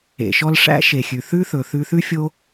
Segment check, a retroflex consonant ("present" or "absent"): present